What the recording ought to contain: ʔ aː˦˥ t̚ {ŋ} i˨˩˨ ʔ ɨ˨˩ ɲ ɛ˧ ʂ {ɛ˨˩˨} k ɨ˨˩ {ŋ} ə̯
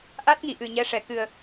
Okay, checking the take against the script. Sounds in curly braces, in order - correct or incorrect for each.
correct, correct, incorrect: none

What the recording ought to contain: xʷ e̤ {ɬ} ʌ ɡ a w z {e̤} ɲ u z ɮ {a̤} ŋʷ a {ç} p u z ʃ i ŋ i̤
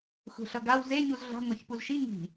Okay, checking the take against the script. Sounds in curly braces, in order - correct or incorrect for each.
correct, incorrect: e, correct, correct

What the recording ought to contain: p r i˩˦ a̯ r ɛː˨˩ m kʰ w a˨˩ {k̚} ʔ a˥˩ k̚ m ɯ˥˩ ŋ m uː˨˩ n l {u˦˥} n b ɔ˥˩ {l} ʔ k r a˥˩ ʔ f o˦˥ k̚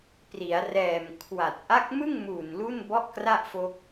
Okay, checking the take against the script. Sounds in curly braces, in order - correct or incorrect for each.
incorrect: t̚, incorrect: u˥˩, incorrect: none

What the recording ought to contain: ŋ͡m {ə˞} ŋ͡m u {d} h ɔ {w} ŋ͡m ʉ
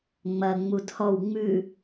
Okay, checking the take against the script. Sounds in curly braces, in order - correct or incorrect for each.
incorrect: ɐ, correct, correct

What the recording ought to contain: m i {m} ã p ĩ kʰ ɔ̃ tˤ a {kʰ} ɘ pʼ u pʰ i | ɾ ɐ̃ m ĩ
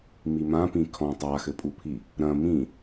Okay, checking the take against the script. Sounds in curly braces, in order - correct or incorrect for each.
correct, incorrect: x

